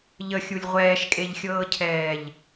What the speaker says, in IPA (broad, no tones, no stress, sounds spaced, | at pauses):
ʎ ə xʲ u lʲ ʁʷ ɛː ʃ kʼ e ʎ xʲ ɤː cʰ ɛː ʎ